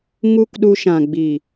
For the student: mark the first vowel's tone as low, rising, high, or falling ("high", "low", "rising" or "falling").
high